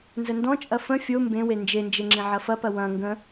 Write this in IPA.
n z ə n d ɔ̃ t͡ʃʼ ɐ f ə̃ fʲ o m b ẽ w e n d͡ʒ e n d͡ʒ e ŋ͡ǁ ĩ ʕ ɐ f ɐ p ɐ w ɐ̃ ŋ ɡ ə̃

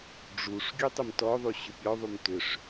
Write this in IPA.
ɖ͡ʐ u ʂ ɡʲ u tˤ ʏ m t ɔ ðˤ u ɕ ʏ pʲ ɔ ðˤ u m t ʏ ʂ

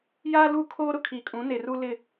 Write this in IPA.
j aː˦ l u˦˨ kʰ oː˦ ɾ ʊ˨ kʰ iː˨ kʼ ũ˨˦ n e˨ r u˦ l ɪ˦˨

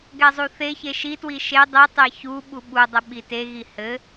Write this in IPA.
ɡ ɛ zˤ u θ e ç e ʃ i t w i ʃ e dˤ i tˤ e ç u ɓ u ɓ u dˤ ɘ ɓ i t e ɣ i h ɘ

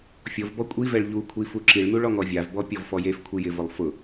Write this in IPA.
fʲ o v b ɔ kʷʼ i v ɛ ɭ ʎ u kʷʰ i f u ǁ i ɭ n u ɭ ɔ ŋ ɔ vʲ a v b ɔ pʲ ɔ v f ɔ j e f kʷʰ i j ɪ v ʊ lˠ f ʊ

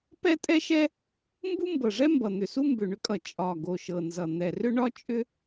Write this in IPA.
p ɛ˥ tʼ ɛ˥ ʃ ɛ˥ | m b u˥ m b ɤ˨˩ ʐ ɛ˥ m b ʌ˨˩ n̪ ʏ˨˩ s u˥ m b ʏ˨˩ ɳ ʏ˥ kʼ ʌ˨˩ t͡ʃʼ ɒ˨˩ ɡ o˨˩ ʃ ɤ˨˩ n z ʌ˨˩ n̪ ɛ˨˩ r ʏ˥ ɳ ɒ˥ t͡ʃʼ ʏ˥

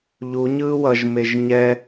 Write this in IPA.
ʎ u ɲ ɯː w ʌ ʒ m e ʒ ɲ ɛ

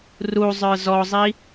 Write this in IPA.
r u zˤ ə˞ z ɔ zˤ i

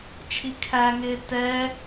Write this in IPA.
t͡ʃʰ i kʰ æ ŋ ɪː t ɛ

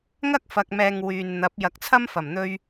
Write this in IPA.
ŋ ɐ˥ k̚ f ɐ˨ k̚ m ɛː˨ ŋ w yː˨ n n̪ ɐ˨˥ p̚ j ɐ˨˥ k̚ t͡sʰ ɐ˥ m f ɐ˨˩ m n̪ ɵ˧ ɥ

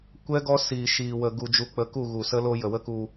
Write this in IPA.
kʷ ɛ˦ ɡ ɔ˦ s iː˨ ʃ iː˨ w ə˨ ɡ u˧ d͡ʒ u˧ k͡p ə˧ k u˦˨ ɣ u˨ s ə˦ l o˦ j ə˨ w ə˦ k u˧

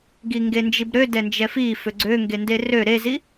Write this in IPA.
ɡ i ŋ ɡ e n d͡ʒ i b ɾ ø d ɛ n d͡ʒ ɛ f i f ø ɡ͡ǀ ø ŋ ɡ e n d e r ø ɾ e z i

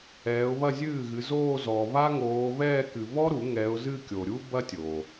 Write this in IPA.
ɛː˨˦ ʊ̯ β ɐ˥˧ zʲ ɨː˥˩ ɣ ɨ˨˦ z oː˥˧ z ɔ˨ β a˥ ŋ oː˨˦ β ɛː˥˧ k ɨ˨ β ɔ˥ ɾ u˨˩˦ ŋ ɛ˨˦ ʊ̯ z ɨ˥˧ kʲ o˨ ɾʲ u˥ b ɐ˥ tʲ o˨

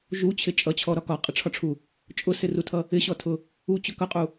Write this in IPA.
ʒ u t͡ɕʰ ɪ t͡ʃʼ ʌ t͡ɕʰ ɔ ɾ ɒ k ɒ qʼ ɪ ʈ͡ʂʰ ɒ ʈ͡ʂʰ u | t͡ʃʼ ʊ s ɪ r u tʰ ʌ | ɪ ɕ ɔ tʰ ʊ | u t͡ɕ ʊ k ʌ qʼ u

